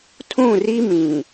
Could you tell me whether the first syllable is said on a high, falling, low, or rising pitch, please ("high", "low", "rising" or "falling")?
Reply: falling